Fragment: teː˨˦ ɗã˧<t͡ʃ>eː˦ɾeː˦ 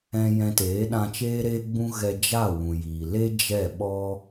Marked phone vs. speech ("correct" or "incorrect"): correct